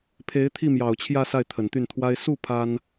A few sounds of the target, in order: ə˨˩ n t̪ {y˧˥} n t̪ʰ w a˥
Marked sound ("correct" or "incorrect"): incorrect